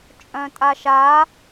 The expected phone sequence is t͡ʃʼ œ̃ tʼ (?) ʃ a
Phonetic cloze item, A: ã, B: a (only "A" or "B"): B